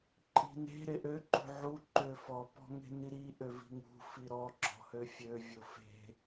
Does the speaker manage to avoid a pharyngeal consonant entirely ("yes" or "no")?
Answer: no